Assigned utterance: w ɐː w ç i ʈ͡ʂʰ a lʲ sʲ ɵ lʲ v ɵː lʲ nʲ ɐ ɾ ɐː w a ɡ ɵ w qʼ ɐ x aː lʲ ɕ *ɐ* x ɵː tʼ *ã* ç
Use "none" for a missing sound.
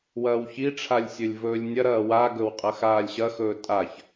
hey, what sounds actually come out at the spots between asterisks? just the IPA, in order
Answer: ɐ, a

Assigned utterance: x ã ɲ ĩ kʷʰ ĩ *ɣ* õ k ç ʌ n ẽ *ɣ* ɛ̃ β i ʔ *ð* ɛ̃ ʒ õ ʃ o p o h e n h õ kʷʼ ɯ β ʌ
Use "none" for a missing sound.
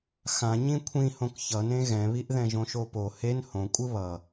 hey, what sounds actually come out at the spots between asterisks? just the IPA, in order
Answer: h, ɣ, ð

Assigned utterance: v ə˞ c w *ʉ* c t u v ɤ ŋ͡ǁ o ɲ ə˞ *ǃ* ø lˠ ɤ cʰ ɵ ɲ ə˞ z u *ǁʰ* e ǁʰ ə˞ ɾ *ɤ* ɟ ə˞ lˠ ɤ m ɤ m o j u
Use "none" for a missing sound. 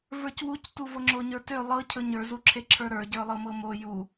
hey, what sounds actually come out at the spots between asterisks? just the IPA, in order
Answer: u, t, ǁʰ, ə˞

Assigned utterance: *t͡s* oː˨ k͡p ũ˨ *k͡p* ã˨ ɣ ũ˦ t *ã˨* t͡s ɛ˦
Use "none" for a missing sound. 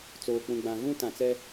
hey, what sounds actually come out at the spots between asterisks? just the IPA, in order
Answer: t͡s, ɡ͡b, ã˨

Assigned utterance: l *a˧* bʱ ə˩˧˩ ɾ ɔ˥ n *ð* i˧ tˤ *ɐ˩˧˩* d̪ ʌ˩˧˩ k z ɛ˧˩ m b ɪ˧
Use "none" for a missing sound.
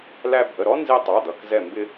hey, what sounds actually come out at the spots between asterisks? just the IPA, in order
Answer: æ˧, z, ɑ˩˧˩

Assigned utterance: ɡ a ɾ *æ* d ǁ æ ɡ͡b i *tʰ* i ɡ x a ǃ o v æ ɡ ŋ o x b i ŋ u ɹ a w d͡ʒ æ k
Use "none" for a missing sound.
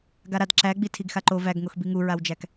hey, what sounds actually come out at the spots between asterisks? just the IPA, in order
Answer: a, tʰ

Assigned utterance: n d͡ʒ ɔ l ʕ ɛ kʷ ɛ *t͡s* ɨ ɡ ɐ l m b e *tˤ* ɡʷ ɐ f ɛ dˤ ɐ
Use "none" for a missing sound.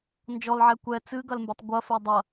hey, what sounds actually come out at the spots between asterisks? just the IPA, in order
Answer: t͡s, tˤ

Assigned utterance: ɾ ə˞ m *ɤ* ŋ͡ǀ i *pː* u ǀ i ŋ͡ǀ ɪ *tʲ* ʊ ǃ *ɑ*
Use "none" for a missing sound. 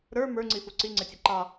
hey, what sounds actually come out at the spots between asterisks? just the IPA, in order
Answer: ə˞, f, tʲ, ɑ

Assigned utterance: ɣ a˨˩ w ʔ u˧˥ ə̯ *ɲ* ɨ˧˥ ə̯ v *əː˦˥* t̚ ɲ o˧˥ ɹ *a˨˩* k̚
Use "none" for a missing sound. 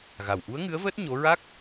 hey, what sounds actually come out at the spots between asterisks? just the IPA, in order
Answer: ŋ, əː˦˥, a˦˥

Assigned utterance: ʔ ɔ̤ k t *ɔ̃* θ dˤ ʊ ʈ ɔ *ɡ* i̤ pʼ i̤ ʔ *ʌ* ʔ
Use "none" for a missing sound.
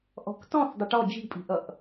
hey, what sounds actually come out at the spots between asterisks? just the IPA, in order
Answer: ɔ̃, d͡ʒ, ʌ

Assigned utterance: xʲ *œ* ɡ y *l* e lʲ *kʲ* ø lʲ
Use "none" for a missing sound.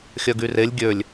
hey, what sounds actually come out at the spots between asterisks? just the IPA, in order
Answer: œ, r, ɡʲ

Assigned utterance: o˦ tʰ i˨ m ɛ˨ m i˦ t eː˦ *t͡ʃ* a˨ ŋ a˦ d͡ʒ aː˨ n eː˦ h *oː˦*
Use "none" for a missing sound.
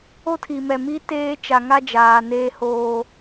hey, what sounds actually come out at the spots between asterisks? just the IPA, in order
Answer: t͡ʃ, oː˦

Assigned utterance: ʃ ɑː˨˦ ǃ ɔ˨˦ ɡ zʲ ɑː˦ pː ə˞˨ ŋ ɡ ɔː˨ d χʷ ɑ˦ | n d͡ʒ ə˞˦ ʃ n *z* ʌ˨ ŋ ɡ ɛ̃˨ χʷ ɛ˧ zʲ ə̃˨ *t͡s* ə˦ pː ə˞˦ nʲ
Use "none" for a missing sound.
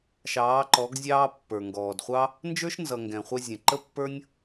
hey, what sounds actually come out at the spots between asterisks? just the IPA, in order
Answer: z, ǃ

